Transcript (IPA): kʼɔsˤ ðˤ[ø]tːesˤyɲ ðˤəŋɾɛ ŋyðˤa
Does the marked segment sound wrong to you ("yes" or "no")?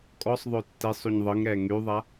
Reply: no